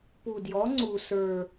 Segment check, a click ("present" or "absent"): present